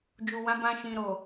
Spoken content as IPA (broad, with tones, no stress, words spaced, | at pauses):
d͡ʒu˨wã˨˦bã˧ʃĩ˨ ɾo˨